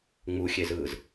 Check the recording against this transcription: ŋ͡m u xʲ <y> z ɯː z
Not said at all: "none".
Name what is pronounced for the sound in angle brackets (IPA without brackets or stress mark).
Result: e